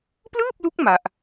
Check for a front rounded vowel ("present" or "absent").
absent